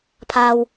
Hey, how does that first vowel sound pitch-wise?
high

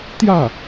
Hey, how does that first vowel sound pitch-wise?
falling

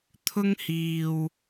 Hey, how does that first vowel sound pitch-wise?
high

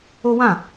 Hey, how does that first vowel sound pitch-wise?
high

